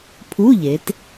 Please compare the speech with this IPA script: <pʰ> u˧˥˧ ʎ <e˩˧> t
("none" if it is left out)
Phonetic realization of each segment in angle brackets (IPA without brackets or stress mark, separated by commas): pʰ, e˩˧